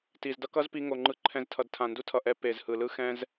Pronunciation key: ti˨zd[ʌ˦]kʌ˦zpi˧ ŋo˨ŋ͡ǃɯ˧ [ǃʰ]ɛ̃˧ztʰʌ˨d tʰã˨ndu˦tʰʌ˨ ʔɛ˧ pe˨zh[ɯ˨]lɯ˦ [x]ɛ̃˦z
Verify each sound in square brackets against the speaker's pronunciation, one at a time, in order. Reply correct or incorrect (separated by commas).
correct, correct, correct, correct